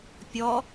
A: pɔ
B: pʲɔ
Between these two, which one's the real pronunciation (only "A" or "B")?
B